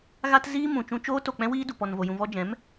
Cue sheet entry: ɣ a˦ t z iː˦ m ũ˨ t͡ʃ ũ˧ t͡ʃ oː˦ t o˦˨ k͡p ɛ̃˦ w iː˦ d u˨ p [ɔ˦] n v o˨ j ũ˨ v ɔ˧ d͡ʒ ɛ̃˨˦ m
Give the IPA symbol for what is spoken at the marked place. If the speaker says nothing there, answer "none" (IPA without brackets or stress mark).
ɔ˨